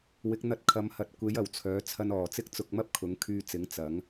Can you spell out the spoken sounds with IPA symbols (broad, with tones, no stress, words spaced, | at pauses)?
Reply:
wɪ˨˥k̚n̪ɐ˧t̚ kʰɐ˨˥mhɐ˨t̚ kʷe˨˥j ɐ˨˩wt͡sʰœː˨˥ t͡sʰɐ˧nɔː˨˩t͡sɪ˥k̚ t͡sʊ˧k̚mɐ˥p̚kʰʊ˨˥ŋ kʰyː˧t͡sɪ˨˥ŋ t͡sɐ˨˥ŋ